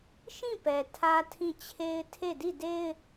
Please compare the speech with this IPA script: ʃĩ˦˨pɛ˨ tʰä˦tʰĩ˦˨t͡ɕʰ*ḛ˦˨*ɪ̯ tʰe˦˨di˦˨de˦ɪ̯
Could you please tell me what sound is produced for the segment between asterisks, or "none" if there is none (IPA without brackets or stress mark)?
e˦